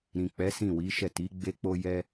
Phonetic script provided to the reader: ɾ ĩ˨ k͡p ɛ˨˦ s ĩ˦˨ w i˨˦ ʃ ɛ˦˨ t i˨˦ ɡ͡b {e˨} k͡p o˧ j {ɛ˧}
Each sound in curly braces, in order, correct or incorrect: incorrect: e˧, correct

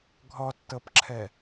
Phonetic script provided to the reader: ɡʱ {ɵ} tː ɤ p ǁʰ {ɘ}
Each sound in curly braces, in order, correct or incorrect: incorrect: ɔ, incorrect: ɛ

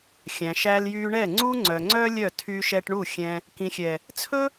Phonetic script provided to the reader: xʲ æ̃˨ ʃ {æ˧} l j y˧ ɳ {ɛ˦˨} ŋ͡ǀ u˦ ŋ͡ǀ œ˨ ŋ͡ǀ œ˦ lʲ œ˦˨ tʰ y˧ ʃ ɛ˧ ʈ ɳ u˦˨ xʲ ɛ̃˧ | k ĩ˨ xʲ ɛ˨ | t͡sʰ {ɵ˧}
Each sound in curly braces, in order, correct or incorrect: correct, correct, incorrect: ɵ˦

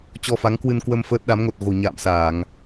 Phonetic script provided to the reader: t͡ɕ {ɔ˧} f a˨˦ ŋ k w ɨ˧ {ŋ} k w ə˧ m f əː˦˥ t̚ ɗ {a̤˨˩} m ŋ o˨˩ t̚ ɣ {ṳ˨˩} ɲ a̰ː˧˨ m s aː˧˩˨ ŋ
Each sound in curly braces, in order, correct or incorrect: correct, incorrect: n, incorrect: a˨˦, incorrect: o̤˨˩

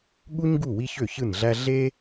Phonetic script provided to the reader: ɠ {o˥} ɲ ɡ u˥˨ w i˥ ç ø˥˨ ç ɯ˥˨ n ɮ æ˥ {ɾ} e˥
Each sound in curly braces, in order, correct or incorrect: incorrect: u˥, incorrect: ɮ

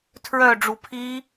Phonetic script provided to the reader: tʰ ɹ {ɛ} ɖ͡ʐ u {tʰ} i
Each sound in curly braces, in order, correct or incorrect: incorrect: œ, incorrect: pʰ

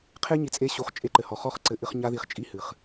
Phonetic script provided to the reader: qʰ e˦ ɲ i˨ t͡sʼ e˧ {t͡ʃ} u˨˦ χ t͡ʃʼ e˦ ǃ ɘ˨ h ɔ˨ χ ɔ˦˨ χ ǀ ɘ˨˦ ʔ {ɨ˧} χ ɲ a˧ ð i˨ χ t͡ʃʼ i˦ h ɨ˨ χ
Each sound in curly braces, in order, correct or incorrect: incorrect: ɕ, correct

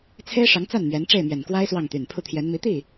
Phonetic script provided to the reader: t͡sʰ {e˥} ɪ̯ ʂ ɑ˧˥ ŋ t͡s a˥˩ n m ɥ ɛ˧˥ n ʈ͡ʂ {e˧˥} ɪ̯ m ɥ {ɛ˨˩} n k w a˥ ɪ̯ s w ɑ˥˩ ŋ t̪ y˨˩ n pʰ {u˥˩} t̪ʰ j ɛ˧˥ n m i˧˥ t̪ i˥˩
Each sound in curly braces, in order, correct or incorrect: correct, incorrect: e˥˩, correct, correct

